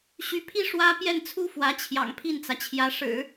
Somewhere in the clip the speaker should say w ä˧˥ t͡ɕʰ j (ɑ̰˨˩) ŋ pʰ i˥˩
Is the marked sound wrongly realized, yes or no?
no